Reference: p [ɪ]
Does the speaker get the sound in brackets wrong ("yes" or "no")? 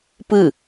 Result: yes